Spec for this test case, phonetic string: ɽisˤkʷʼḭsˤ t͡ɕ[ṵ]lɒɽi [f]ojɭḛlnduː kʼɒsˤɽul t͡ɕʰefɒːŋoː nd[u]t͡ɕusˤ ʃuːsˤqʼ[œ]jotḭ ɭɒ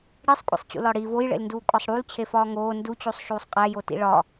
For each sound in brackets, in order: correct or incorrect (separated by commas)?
correct, incorrect, correct, incorrect